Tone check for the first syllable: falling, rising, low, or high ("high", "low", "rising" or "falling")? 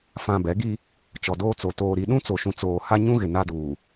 low